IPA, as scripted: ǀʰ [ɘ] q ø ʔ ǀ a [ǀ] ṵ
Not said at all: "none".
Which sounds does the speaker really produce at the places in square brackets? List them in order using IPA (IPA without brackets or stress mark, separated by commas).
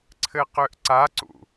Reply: ɘ, ǀ